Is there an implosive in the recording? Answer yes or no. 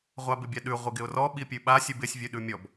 yes